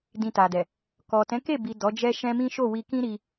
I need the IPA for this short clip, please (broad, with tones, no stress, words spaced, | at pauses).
dĩ˨ ta˨dɛ˨ | kɔ˨ tɛ̃˨˦ke˦˨ bi˨ dɔ˨˦d͡ʒɛ˦ʃɛ̃˦ mĩ˦ʃo˦˨ wi˧kĩ˦ɾi˧